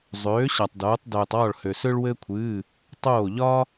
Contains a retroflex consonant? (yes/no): yes